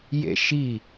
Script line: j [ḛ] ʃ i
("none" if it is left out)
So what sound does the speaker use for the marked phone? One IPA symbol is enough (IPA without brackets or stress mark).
ḛ